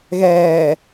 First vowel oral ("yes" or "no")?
yes